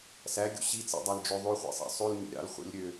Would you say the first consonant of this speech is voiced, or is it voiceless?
voiceless